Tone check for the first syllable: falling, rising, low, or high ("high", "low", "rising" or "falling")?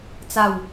falling